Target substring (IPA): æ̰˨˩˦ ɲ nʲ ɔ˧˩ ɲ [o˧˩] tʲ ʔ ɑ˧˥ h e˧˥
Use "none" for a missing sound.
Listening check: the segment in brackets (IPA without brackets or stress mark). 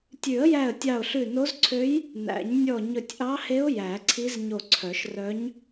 ɵ˧˩